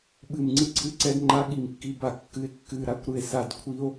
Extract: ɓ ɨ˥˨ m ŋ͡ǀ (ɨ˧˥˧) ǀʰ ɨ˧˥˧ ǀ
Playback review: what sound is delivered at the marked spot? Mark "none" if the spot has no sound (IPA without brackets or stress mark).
ɨ˥˨